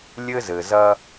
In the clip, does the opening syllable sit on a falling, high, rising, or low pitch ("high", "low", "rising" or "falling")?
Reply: high